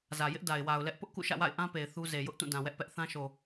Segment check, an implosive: absent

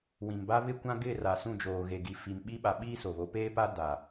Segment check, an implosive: present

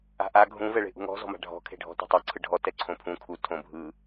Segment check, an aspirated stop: present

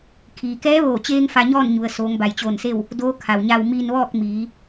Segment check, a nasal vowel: absent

